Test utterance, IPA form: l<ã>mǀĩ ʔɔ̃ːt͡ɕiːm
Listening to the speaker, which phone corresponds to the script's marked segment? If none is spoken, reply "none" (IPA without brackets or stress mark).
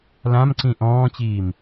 ã